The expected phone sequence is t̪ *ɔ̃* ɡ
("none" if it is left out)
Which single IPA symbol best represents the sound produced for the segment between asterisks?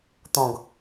ɔ̃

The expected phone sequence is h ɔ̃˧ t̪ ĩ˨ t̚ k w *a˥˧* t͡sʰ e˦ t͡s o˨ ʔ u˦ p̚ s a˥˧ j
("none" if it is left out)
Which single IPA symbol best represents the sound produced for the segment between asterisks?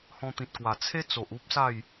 a˨˩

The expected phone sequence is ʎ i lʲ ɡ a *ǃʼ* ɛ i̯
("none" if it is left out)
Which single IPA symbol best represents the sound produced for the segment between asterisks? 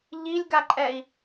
ǃʼ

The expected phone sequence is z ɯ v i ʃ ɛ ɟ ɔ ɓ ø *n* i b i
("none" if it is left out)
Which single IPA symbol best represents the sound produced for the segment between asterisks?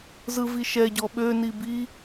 n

